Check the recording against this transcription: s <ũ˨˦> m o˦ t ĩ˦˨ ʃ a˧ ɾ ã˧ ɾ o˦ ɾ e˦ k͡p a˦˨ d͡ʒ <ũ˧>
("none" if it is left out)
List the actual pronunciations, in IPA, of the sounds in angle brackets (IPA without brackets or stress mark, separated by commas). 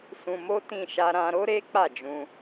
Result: ũ˧, ũ˧